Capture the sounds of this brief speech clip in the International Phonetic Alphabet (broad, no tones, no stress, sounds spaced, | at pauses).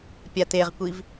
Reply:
pʲ a t e ʁ kʷ i v